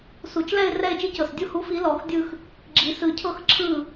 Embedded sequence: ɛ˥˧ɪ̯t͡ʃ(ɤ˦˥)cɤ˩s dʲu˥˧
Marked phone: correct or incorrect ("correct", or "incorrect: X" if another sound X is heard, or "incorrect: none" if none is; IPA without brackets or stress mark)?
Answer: incorrect: ɯ˦˥